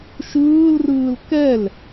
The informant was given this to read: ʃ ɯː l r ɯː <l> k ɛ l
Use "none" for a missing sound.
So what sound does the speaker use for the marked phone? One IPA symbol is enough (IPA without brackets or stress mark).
l